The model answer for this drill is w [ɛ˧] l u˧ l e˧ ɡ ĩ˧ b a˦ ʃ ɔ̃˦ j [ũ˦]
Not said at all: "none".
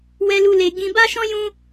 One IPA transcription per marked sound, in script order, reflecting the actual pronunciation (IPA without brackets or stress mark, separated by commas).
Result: ɛ˧, ũ˦